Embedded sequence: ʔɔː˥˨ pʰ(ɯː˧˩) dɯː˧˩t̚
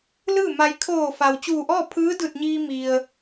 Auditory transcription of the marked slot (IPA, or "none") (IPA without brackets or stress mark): ɯː˧˥